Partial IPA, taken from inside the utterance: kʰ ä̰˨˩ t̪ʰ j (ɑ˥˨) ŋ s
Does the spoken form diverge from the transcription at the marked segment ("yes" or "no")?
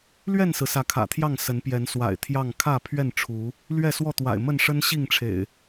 no